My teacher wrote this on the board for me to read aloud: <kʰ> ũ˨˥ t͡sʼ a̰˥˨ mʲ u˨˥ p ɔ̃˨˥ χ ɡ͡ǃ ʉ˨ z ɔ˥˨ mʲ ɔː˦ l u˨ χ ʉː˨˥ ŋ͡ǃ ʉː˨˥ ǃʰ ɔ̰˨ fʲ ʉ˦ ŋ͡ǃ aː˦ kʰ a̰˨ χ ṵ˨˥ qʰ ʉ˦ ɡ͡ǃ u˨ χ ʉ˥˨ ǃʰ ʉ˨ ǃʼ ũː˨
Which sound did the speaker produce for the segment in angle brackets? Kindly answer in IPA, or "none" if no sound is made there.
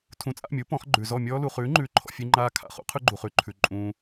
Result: tʰ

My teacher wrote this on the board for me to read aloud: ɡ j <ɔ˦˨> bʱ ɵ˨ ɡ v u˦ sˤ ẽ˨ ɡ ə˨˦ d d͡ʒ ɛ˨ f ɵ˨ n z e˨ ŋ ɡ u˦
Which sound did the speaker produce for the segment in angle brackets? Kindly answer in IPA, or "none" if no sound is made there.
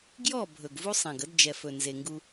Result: ɔ˦˨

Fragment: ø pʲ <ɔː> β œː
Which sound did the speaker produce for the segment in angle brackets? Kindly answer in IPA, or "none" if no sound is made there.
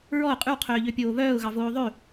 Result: oː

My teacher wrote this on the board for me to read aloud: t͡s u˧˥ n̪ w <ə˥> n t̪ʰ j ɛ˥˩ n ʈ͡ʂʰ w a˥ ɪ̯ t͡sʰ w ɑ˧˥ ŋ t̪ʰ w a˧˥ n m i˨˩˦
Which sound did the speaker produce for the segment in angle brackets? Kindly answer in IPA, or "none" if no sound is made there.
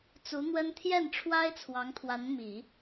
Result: ə˥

